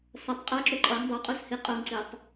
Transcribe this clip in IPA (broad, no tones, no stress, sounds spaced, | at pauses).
s ʌ tˤ qʼ ʌ ǁ u ǃʼ ʌ ŋ dˤ o qʼ u s h i qʼ o ŋ ǀ i tˤ